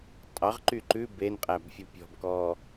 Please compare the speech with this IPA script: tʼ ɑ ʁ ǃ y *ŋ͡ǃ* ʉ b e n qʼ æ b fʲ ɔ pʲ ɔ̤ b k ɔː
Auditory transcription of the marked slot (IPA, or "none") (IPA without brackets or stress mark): ǃ